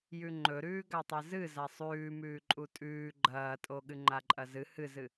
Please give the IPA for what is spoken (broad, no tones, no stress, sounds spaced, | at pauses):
j ʉ ŋ͡ǃ ɵ ɾ ʉː ɡ a tˤ e z ɨ z a sˤ ʉː m ʉː ǃʼ u tʼ ʉː ɡ͡ǃ ɐː tʼ o ɠ ɨ ŋ͡ǃ a ǃʼ ɐ z ɨ h ɨ z ɨ